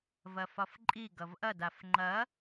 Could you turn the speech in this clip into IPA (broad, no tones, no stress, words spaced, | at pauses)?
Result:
vɐfɒfǃʼi ɡʌvʔɐd afŋ͡ǃɐ